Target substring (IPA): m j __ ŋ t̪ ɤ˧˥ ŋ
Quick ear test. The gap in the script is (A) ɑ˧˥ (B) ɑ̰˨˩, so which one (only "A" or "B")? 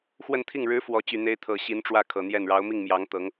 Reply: A